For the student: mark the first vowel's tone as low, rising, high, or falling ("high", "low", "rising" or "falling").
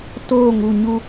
falling